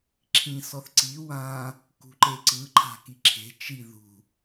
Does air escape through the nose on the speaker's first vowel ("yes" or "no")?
yes